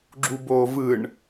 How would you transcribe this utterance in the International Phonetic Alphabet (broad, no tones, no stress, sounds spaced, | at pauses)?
ɡ͡ǁ u b oː v ɯ ɳ